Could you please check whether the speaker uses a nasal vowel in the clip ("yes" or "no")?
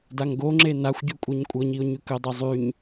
no